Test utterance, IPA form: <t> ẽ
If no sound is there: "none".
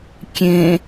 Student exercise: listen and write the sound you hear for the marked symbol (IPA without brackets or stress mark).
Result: kʲ